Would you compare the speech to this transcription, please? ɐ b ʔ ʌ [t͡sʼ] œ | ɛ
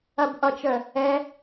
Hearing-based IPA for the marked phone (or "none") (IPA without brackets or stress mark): t͡ʃ